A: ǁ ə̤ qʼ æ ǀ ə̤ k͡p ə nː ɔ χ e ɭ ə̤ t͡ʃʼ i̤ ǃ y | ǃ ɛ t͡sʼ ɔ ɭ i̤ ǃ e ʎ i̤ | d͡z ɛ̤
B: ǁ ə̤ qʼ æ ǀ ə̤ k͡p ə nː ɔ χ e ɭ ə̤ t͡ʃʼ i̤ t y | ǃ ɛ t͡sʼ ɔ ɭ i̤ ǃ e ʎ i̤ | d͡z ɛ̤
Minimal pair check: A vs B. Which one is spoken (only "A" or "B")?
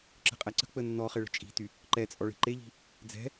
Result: B